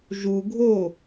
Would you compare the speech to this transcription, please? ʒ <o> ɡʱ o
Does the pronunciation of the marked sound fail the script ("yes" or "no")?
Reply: yes